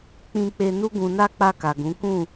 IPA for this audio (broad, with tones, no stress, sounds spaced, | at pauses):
k͡p ĩ˧ k͡p e˧ n u˦ ɡ ũ˧ n a˦ k͡p a˧ k a˨ ɡ ũ˨˦ k ũ˦˨